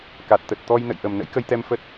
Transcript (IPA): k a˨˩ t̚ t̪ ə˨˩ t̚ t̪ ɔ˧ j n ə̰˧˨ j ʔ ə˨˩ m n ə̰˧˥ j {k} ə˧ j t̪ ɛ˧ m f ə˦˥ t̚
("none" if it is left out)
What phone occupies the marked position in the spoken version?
k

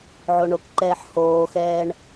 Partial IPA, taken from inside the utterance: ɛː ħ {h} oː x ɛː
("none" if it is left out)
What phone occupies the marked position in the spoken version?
h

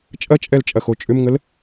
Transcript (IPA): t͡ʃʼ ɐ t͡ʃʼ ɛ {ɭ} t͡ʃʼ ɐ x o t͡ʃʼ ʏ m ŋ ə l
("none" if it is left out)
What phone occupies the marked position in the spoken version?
l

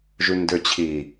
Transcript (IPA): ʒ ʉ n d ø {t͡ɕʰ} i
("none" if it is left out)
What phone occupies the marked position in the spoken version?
t͡ɕʰ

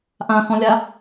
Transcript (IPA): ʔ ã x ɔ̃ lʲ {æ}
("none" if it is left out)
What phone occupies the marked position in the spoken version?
a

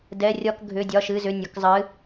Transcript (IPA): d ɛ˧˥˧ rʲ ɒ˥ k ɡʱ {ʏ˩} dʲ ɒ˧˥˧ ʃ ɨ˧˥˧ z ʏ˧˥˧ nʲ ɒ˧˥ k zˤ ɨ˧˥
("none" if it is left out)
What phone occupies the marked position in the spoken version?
ʏ˧˥˧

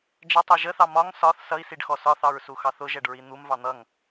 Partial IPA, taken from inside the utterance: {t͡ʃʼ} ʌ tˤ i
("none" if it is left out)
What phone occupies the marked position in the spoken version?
d͡ʒ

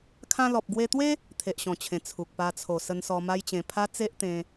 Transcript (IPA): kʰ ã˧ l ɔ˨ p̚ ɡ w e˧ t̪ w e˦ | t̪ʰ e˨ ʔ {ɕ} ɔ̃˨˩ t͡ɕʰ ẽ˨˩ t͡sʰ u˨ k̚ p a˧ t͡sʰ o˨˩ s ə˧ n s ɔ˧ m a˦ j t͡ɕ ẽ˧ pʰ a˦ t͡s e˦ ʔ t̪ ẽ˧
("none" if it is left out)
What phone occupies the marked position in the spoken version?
ɕ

